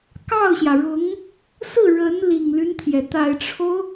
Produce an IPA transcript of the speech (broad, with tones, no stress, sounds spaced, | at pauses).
k ɑ˥˩ ʊ̯ ɕ j ä˩ ɻ ʊ˧˥ ŋ | s ɹ̩˥˩ ɻ ə˧˥ n l i˨˩ ŋ l y˦ n t̪ʰ j ɛ˩ t̪ a˨˩ ɪ̯ ʈ͡ʂʰ o˦ ʊ̯